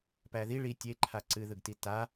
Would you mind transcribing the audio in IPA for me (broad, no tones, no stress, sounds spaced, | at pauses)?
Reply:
p æ ð i ɭ i tʲ e ǃʰ a ǀ ɨ ð ɯ ɡ t i t a